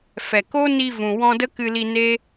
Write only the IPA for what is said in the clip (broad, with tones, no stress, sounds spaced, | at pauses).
f ɛ˨ k o˦ n i˧ v ũ˨ w ɔ̃˧ d ə˦ k ɨ˧ l i˧ n e˦